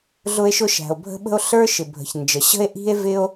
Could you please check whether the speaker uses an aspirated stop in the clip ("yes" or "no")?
no